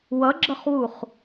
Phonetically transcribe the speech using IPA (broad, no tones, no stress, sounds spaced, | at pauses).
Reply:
w ʌ ɡ͡ǁ ʌ χ w u χ